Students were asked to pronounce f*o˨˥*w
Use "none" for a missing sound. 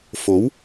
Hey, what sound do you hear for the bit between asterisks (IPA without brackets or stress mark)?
o˨˥